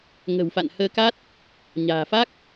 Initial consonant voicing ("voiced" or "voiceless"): voiced